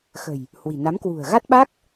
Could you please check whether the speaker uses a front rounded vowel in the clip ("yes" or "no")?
no